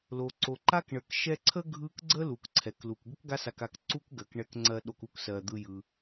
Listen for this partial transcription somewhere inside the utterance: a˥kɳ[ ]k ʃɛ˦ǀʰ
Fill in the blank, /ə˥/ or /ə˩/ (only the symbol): ə˩